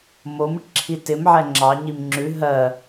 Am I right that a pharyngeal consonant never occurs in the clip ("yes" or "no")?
no